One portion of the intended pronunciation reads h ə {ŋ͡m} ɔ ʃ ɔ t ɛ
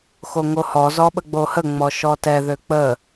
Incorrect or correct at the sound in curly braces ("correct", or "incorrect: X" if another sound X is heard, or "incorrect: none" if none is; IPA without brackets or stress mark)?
correct